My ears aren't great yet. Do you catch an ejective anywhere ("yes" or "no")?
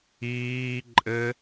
yes